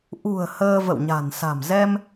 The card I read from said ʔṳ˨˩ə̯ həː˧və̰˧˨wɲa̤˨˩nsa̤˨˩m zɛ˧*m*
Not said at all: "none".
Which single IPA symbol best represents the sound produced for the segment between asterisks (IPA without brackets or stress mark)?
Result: m